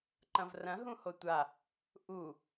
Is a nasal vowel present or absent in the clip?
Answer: present